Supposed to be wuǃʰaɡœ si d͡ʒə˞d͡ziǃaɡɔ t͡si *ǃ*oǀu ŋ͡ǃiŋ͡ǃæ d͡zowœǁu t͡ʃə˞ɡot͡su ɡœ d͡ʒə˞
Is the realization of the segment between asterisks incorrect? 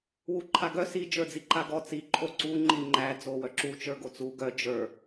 yes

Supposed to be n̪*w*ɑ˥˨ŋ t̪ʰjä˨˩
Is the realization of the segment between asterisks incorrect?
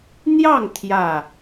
yes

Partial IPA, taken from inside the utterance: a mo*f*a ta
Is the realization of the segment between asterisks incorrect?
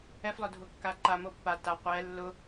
yes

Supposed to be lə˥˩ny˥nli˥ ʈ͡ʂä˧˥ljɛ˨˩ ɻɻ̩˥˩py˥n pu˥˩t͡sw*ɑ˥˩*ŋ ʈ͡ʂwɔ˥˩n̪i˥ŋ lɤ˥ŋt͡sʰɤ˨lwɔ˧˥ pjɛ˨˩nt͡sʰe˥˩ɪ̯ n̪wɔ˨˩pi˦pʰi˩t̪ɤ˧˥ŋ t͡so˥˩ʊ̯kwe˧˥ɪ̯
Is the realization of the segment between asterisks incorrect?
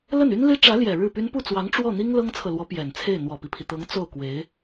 yes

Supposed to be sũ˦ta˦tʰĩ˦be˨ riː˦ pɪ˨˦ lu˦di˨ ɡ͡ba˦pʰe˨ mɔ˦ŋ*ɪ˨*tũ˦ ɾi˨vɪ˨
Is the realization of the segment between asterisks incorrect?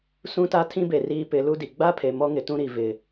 no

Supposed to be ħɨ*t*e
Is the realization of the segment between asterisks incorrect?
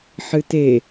no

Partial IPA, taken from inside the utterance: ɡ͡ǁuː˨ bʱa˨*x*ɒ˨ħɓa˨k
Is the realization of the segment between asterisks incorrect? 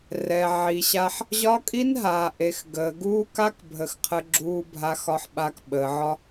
no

